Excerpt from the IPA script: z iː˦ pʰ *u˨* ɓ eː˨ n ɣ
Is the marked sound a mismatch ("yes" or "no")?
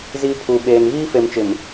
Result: no